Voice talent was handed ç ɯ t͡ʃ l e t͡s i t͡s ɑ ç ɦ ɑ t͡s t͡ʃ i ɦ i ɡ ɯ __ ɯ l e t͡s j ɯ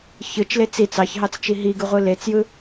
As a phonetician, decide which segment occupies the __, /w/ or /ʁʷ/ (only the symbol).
ʁʷ